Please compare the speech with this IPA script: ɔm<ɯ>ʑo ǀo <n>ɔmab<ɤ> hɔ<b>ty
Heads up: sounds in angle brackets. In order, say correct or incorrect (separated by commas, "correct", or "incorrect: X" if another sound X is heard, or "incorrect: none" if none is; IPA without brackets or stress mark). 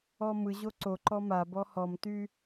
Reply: correct, incorrect: ǃ, incorrect: ɔ, incorrect: m